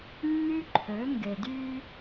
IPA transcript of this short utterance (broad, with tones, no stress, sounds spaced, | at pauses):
nː y˦ ǃʰ ø˨˦ ŋ ɡ e˨ d y˦